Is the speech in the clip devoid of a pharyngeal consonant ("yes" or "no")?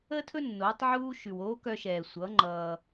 no